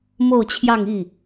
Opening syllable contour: falling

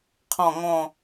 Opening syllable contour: falling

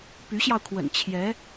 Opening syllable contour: rising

